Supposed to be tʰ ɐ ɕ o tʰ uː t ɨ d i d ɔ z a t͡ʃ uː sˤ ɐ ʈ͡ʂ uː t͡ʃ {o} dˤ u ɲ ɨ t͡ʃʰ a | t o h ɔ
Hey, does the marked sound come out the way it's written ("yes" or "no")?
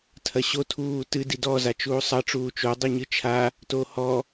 yes